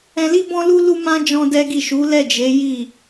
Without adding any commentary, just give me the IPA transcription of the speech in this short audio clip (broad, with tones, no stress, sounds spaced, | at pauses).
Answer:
ɛ̃˧ l i˦ b ɔ̃˦ l u˦ l u˦ m ã˦ d͡ʒ ɔ̃˦ d ɛ˦ ɡ i˦˨ ʃ u˨˦ l ɛ˦˨ d͡ʒ e˨˦ j i˦˨